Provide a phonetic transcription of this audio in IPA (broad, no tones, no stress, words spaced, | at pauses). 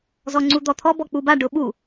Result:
zɔŋ͡ǀud̪ɔt̪ʰɔ bɔk͡puba ɖʊɓu